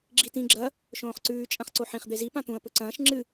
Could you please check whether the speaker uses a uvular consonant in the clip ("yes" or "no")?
yes